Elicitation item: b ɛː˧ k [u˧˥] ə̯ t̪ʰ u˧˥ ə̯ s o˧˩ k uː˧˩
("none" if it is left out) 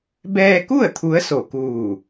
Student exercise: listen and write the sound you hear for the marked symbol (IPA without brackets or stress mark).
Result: u˥˨